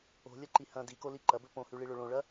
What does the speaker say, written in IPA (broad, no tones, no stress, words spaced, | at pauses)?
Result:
o̤lʲɐǃi hɐ̃ dikoli ǃɐbɵ põhʉɭiɭɵ ɭõɭɐ